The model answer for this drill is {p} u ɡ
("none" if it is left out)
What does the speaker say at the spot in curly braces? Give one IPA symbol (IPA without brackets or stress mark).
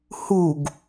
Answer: h